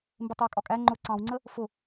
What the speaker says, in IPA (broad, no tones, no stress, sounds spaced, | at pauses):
m b ɪ tˤ j ə kʼ ɒ kʼ æ ŋ͡ǃ ʊ ǀ ɑ̃ w ŋ͡ǀ ə | f ʊ